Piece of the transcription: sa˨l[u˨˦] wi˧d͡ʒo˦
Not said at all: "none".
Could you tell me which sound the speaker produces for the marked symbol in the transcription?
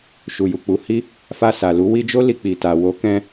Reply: u˨˦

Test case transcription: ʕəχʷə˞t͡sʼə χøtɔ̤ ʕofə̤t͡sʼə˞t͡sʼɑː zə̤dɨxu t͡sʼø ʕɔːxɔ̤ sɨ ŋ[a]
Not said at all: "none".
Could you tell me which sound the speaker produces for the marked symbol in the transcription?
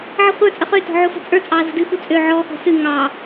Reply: ɑ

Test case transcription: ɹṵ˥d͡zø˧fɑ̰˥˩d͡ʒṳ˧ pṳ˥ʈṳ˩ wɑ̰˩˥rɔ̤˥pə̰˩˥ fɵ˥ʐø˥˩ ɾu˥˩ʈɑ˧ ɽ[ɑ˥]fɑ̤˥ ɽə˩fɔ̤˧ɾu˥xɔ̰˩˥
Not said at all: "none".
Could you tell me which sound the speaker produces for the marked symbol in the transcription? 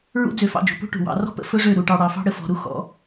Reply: ɑ˩˥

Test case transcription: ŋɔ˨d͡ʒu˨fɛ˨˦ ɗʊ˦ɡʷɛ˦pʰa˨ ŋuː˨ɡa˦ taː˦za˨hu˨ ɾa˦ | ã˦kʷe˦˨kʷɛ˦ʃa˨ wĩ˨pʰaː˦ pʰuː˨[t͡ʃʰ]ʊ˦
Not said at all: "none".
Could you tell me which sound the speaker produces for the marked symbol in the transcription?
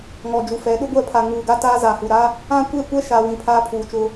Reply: t͡ʃ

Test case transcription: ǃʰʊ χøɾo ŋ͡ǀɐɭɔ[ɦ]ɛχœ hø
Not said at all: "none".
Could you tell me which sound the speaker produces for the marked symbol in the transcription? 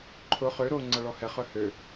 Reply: h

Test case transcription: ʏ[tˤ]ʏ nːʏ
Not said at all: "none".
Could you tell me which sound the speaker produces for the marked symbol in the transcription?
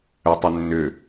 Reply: tˤ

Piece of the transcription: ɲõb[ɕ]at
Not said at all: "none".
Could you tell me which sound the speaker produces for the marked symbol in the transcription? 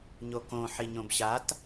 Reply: ɕ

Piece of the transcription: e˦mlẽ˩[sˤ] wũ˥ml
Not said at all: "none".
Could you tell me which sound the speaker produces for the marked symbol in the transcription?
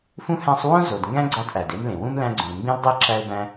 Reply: none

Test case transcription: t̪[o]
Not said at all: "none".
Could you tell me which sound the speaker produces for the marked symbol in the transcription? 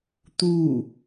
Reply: u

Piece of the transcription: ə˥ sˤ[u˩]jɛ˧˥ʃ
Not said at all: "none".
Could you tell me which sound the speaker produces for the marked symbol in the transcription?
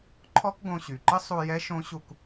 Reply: u˧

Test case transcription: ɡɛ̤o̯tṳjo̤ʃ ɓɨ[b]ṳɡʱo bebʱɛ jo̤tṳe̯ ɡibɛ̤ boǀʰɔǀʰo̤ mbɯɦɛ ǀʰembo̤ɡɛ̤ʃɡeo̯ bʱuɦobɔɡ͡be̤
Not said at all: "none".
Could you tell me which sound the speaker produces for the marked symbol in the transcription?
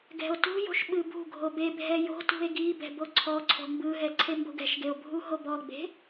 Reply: b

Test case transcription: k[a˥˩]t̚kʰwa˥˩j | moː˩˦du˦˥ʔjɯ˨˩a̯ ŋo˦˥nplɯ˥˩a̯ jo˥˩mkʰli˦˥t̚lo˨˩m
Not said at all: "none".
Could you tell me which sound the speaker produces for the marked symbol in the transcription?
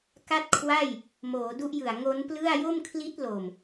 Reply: a˥˩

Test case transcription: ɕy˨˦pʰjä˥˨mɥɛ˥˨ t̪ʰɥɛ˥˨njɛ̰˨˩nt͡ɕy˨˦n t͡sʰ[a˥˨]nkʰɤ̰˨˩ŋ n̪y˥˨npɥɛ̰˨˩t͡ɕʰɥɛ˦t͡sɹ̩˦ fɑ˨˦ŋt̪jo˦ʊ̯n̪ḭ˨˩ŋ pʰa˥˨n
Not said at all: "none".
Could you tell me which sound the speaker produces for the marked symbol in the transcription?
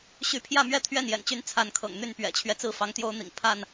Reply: a˨˦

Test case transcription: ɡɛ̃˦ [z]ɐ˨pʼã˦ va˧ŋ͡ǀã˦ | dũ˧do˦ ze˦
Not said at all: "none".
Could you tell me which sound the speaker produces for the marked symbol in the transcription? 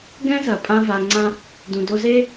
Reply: z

